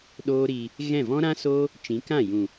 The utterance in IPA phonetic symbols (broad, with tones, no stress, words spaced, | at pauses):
ɗoː˦ɾiː˧ | ɣɛ̃˦˨vɔ̃˦ɾã˦ soː˦ | t͡ʃĩ˨˦kã˦˨ jũ˨